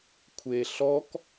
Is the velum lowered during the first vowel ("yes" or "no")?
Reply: no